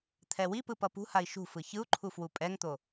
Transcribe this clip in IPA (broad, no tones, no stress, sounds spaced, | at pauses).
t̪ʰ ɛ w i p ɯ p ʌ p ṳ h a i̯ ʃ ṳ f ɯ ç ɯ u̯ ǃʰ u f w u pʼ ɛ ŋ t̪ o